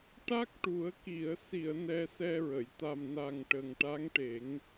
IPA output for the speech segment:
ʈ a˦˥ k̚ ʈ u˨˩˦ ə̯ k i˨˩˨ ə̯ s i˨˩˨ ə̯ n ɛ˧ s ɛ˧ ɹ ə˨˩˨ j t̪ a˨˩ m n a˨˩ ŋ ʈ ə˨˩ ŋ ʈ a˧˥ ŋ ʈ e˨˩˦ ŋ

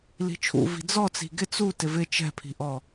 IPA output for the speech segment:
l i̤ t͡ʃʰ ṵ v i̤ d͡z ɔ t͡s i̤ ɡ ɪ t͡s u t ɪ v ɪ t͡ʃ ɛ̤ pʰ i̤ ʔ ɔ

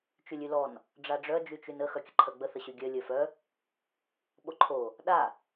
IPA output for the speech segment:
t͡ʃ y lʲ y l ɔ n | ɖ͡ʐ a ɖ͡ʐ œ d͡ʒ y t͡ʃ y n ə x œ kʲ ə ǃʰ œ ɡ͡b ə θ ə ɕ y ɡʲ œ lʲ œ f œ | ɓ o ǃʰ o | ɗ a

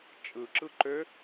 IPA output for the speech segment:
t͡ʃʼ ɯ ǁ ɯ ǃ ø

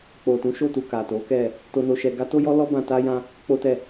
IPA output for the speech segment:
k͡p o˨ t ũ˨˦ ʃ o˦˨ t u˨ k a˨ t o˨˦ k ɛ˦˨ | t o˧ n o˧ ʃ ɛ˧ ɡ a˦ t o˦ j ɔ˦ l ɔ˦ b ã˧ t a˦ j ã˦ | k͡p o˦ t ɛ˦˨

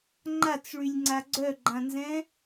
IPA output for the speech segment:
ŋ͡ǃ a t͡s ɭ y lʲ ŋ͡ǀ a ɡ͡ǀ œ ɡ͡ǃ ã n z ɛ̃

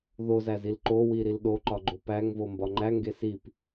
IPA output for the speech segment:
ð o z æ z i l ǃ o w i ɾ i l ɗ o ǃ ɒ ɡ͡ǃ o p æ ŋ v o m b ɒ ŋ͡ǃ æ ŋ ɡ e s i p

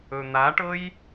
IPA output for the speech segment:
ɵ n̪ a ʈ ɤ j

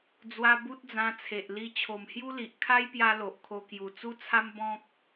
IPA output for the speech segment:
d͡z w a˧ b u˦ t̚ d͡z ã˧ t͡sʰ e˨ ʔ l i˧ t͡ɕʰ o˨˩ m h j u˦ l i˨ ʔ kʰ a˦ j p j a˦ l o˨ ʔ kʰ o˧ k j u˨˩ t͡s u˦ t͡sʰ a˦ m b ɔ̃˦ k̚

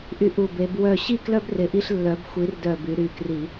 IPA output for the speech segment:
ʔ y˦ ʔ u˧˩ b e˨˦ b w œ˥˨ ɕ i˥˨ k l œ˦ b r ɪ˨˦ ʔ i˦ ɬ lː œ˨˦ b xʷ i˨˦ r d œ˧˩ b y˨˦ ɾ y˧˩ k r i˧˩˧

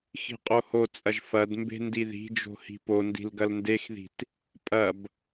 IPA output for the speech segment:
x i̤ qʼ o h o t͡sʼ ɐ ʒ f ɐ d m b e̤ n d i ð i̤ d͡ʒ o̤ h i̤ p o n d i̤ l ɡ ɐ l n d e x ð i̤ t | pʼ ɐ b

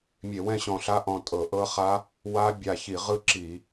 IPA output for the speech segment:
mʲ e˧˩˧ w ɛ̃˥˨ ɕ ɔ̃˧˩ ɬ a˦˥ ʔ ɔ̃˧˩ tʼ ɤ˧˩˧ ʔ ɤ˦˥ χ a˦˥ | w a˦˥ bʲ a˧˩ ç i˧˩˧ ʁ ɯ˥˨ ǁ i˧˩˧

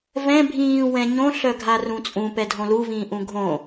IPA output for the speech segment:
v ɛ̃ bʱ ĩː w ɛ̃ ɲ õ ɬ œ ɡʱ a r ũ t͡sʼ ũ p ɛ dʱ õ l u v ĩː ʔ ũ ɡʱ õ

